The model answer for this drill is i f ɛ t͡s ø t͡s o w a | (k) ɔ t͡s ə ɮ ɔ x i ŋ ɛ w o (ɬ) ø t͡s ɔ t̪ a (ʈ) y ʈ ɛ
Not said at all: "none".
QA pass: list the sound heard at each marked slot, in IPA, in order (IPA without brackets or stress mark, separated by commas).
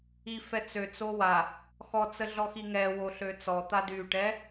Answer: x, ɬ, d